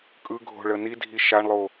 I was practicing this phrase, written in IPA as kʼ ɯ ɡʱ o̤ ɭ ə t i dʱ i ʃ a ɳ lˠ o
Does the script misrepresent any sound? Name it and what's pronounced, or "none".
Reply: t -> n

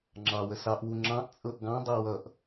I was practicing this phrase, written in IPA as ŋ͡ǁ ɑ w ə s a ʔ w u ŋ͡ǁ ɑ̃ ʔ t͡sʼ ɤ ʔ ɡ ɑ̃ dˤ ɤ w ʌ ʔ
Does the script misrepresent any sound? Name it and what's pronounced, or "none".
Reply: a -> ɑ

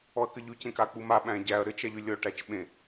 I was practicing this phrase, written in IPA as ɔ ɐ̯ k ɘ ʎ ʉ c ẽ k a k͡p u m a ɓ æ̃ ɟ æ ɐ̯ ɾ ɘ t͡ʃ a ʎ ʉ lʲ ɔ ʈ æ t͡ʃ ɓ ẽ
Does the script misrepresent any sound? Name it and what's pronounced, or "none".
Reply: none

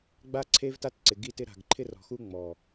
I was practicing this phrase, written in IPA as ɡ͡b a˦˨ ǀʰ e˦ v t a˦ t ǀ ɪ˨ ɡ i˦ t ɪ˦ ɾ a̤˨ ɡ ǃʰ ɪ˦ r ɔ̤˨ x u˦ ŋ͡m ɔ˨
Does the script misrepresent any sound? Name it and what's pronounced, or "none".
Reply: none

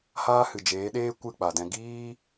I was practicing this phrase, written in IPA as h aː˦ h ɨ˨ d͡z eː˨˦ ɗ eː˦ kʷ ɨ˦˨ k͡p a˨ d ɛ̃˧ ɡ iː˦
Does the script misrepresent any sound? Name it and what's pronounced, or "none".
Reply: d͡z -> d͡ʒ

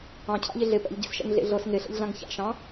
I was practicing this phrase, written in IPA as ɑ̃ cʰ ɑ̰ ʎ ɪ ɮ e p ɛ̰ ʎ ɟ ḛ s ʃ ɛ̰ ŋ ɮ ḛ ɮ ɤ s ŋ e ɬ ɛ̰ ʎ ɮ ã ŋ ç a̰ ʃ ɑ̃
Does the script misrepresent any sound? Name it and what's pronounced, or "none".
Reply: none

